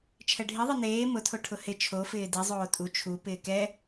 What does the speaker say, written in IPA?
t͡ʃʰ ɛ ɖʱ i ðˤ i n eː m ʊ tʰ o ʈʰ ʊ h ɪ t͡ʃʰ o f ɪː d i zˤ oː tʼ u t͡ʃʰ u p ɪː k ɛ

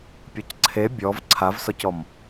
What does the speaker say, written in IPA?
pʲ ɔ c ǀʰ e bʲ ɔ v ǀʰ a v s ɔ c ɔ m

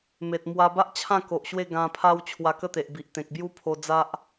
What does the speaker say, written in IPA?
m e˨ t̚ m w a˧ b a˦ ʔ t͡ɕʰ ã˥˧ k o˨ ʔ ɕ w e˥˧ ɡ ã˧ pʰ a˦ w t͡ɕʰ w a˧ k ə˥˧ t̪ e˨ ʔ b i˨ ʔ t̪ ẽ˨ k̚ b j u˦ pʰ o˧ d͡z a˦ ʔ

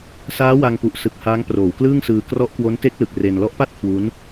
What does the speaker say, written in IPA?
s aː˦˥ w a˧ ŋ p u˨˩ ʔ s ɯ˨˩ k̚ h aː˦˥ ŋ p r oː˩˦ w k l ɯː˥˩ ŋ s ɯː˧ k r ɔ˦˥ ʔ k w o˦˥ n t e˦˥ k̚ l ɯ˨˩ k̚ r e˧ n l ɔ˦˥ ʔ p a˥˩ t̚ kʰ w u˦˥ n

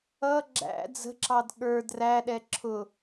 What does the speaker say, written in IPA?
ʌ ɡ͡ǁ æ̰ d͡z ə̤ ǁ ɑ d ɠ ə˞ d r æ ɗ ɛ ǁʰ ʊ

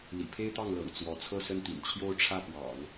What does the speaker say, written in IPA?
l ḭ˨˩ pʰ e˥ ɪ̯ t̪ ɑ˥˩ ŋ l ɤ̰˨˩ ŋ t͡s w ɔ˧˥ t͡sʰ ɤ˥˧ s ə˥˩ n t̪ ḭ˨˩ n t͡ɕʰ j o˥˧ ʊ̯ ʈ͡ʂʰ ä˥˩ p w ɑ̰˨˩˦ ŋ

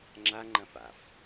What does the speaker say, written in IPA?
ŋ͡ǁ a ŋ͡ǃ ɐ̃ f a̰ f

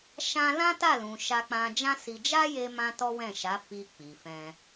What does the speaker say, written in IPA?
ʃ ã˧ l ã˦ t a˦˨ l ũ˨ ʃ a˧ k͡p ã˧ d͡ʒ ã˦ s i˧ d͡ʒ a˦ j e˧ m ã˧ t ɔ˦ w ɛ̃˦˨ ʃ a˨˦ f i˧ k͡p i˨ f ɛ̃˧

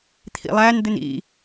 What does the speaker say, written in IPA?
t̪ʰ ḭ lˠ æ n d̪ ɪ n ḭ

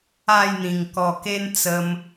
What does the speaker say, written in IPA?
a˥˧ j n̪ ĩ˨˩ ŋ k ɔ˨˩ k e˦ n t͡s ə˧ m

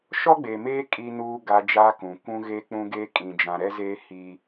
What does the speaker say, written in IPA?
ʃ ɔ˦ ɡ͡b eː˨ m eː˦ kʼ i˦ n uː˦ ɡ a˦ d͡ʒ aː˦ k ũ˨ kʷ ũ˦ ɣ eː˦ k͡p ũ˦ ɡ eː˦ kʼ ĩ˨ d͡ʒ ã˨ ɾ ɛ˦ z eː˦ h i˦

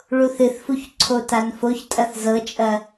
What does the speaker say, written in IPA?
ɭ u θ ɨ θ f u ç ǀʰ o t a n f o ç tʼ ɐ θ z ɤ t͡ʃʼ ɐ

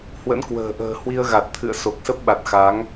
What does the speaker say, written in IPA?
h w ə̰˧˥ n k w ə̤ː˨˩ ʔ ə̤ː˨˩ h w i˧ ə̯ ɣ a˨˩ t̚ t̪ʰ ɨ̰˧˨ ə̯ s o˨˩ k̚ s ə˦˥ p̚ ɓ a˨˩ t̚ x a˨˦ ŋ

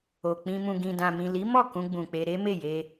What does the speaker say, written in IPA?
o˨ k͡p ĩ˧ m ũ˨ ɡ ĩ˨ d ã˨ m ĩ˨ l i˨˦ m ɔ˦˨ k ũ˧ ɡ͡b ũ˨ k͡p e˧ ɾ e˦ m e˦˨ j e˧

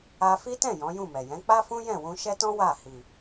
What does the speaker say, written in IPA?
a˧ f i˦ t ɛ̃˦˨ j ɔ̃˨˦ j ũ˦˨ m ɛ˨ j ɛ̃˨˦ k͡p a˦ f ũ˦ j ɛ̃˦˨ w ũ˧ ʃ ɛ˦ t ɔ̃˦ w a˦˨ h i˨

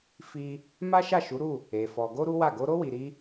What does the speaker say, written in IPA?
f i˦ | m a˦ ʃ a˦˨ ʃ u˨˦ ɾ u˦˨ | e˧ f ɔ˧ ɡ o˦ ɾ u˦ w a˦˨ ɡ o˧ ɾ o˦ w i˧ ɾ i˦

